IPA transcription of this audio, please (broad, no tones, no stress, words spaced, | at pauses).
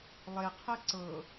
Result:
lˠeqʰɛ ǀɤ